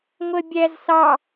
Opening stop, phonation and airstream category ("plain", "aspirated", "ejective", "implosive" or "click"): plain